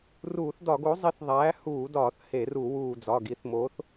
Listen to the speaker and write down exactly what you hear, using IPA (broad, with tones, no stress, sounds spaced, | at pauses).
r uː˧˩˧ θ d ɒ˧˩˧ ɡ o˨˥ zˤ i˨˥ θ ðˤ æː˨˥ h uː˧˩˧ d ɒː˧˩˧ θ h e˧˩˧ r u˧˩˧ w uː˧˩ d͡z ɒ˩˧˩ ɡ i˨˥ θ m oː˨˥ θ